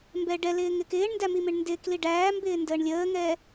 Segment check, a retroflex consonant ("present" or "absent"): present